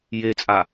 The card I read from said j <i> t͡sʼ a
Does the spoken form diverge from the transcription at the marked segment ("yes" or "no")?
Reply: yes